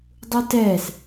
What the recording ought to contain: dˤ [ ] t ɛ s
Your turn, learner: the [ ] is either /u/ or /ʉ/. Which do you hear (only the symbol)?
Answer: u